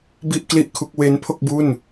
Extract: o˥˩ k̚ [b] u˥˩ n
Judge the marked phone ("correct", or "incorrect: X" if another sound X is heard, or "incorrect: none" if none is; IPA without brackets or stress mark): correct